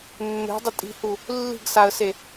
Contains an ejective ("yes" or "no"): yes